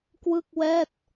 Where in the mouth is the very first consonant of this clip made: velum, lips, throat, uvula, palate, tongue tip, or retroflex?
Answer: velum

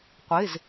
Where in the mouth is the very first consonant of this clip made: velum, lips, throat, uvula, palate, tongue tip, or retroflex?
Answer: uvula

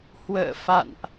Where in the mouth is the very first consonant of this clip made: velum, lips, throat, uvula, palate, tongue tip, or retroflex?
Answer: throat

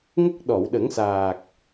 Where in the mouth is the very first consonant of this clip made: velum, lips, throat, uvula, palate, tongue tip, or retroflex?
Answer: velum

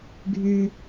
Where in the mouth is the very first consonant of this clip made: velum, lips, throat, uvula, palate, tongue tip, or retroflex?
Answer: velum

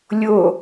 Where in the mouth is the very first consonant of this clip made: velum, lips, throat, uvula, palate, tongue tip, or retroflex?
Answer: tongue tip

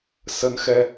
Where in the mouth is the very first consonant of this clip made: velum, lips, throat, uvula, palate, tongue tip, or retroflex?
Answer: tongue tip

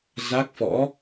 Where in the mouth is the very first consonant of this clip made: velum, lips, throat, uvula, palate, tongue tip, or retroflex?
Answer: tongue tip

